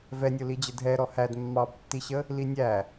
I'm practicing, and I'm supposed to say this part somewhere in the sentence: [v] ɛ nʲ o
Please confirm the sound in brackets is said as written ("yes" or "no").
yes